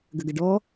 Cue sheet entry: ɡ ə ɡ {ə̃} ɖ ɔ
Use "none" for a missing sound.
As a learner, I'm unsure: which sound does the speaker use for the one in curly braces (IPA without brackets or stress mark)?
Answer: ə